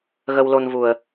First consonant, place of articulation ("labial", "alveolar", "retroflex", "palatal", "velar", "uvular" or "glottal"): velar